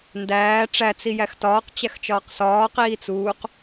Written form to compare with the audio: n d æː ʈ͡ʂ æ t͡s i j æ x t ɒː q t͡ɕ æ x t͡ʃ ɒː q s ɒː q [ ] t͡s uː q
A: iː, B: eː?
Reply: A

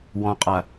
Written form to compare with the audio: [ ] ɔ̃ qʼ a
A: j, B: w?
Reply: B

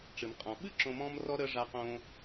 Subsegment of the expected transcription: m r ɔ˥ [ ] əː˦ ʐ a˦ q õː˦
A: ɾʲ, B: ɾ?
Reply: B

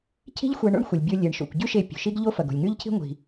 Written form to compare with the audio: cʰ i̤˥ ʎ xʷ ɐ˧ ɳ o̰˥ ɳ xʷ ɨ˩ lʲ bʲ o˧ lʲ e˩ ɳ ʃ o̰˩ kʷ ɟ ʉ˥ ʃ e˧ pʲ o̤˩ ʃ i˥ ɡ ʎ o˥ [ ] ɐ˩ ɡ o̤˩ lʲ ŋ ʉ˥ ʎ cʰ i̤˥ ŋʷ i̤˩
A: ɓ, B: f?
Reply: B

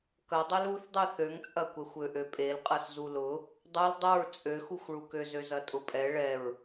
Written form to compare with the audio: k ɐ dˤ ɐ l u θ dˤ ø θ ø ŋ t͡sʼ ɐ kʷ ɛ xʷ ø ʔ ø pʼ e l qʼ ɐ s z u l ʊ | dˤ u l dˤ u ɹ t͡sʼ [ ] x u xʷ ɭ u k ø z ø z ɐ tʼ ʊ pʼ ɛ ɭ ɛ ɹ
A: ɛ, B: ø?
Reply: B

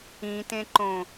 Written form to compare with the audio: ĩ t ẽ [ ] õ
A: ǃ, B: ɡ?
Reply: A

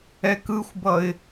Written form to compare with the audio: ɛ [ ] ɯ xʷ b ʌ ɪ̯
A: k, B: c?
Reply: A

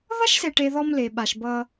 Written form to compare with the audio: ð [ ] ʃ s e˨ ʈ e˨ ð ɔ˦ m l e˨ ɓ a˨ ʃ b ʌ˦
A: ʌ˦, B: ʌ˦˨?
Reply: A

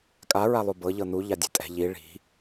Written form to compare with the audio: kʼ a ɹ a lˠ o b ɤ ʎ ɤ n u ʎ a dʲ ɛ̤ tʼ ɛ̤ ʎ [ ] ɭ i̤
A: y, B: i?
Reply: B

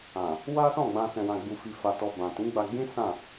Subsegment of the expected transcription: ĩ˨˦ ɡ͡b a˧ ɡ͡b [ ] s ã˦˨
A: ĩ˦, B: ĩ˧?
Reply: A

